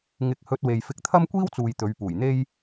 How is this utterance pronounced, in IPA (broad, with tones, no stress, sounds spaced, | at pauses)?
ŋ ɪ˨˥ k̚ h ɵ˧ t̚ w e˨ j f ɪ˧ k̚ t̪ʰ ɐ˥ m kʷ iː˥ w t͡s uː˨ j t̪ ɵ˨˧ ɥ p uː˨˩ j n̪ e˥ j